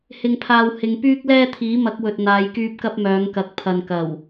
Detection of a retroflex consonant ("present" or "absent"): absent